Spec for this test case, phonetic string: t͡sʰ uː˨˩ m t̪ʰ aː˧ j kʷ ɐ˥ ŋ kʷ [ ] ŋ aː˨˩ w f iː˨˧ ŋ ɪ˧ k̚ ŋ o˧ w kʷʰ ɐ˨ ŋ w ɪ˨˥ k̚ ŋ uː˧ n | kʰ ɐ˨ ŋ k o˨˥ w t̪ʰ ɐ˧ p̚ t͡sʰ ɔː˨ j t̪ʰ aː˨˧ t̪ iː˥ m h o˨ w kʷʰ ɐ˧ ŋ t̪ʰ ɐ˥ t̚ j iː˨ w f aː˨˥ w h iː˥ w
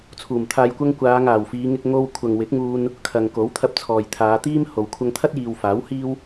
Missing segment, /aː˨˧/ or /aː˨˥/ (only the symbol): aː˨˧